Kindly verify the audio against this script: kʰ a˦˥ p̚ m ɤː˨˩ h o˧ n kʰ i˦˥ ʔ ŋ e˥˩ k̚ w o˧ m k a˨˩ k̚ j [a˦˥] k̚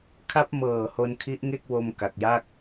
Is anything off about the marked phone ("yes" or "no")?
yes